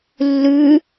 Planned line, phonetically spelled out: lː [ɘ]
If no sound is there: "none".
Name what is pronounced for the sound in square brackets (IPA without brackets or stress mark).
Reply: ʉ